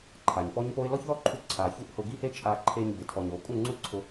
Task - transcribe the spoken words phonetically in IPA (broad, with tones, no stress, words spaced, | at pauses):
ǃʰa˨ɲpɔ˦ɲ po˦ɪ̯ lɔ˦çðɔ˦ǃʰu˧ ǀʰa˨çu˦ʔhʊ˧ ɡi˦he˦ t͡ʃʼa˧ ǃʰe˧ɲbɪ˨ tʰɔ˨ɲo˨kʼu˦˨ŋ͡ǀu˦ ǀʰʊ˧